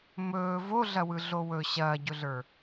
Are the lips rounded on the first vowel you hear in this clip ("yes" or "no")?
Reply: yes